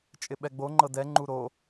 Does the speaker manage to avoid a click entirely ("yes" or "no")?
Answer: no